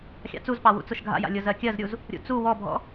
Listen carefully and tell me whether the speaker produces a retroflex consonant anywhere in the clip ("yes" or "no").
no